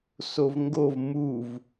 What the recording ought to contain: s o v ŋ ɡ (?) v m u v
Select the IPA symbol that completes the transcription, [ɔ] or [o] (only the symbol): o